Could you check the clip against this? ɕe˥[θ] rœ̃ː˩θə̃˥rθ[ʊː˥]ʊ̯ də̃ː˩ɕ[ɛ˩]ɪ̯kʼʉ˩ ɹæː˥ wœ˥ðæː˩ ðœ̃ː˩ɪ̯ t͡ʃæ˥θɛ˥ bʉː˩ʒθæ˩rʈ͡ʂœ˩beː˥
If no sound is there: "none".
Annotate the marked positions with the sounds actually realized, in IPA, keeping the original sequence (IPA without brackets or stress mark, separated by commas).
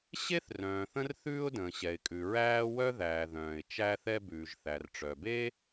θ, ʉː˥, ɛ˩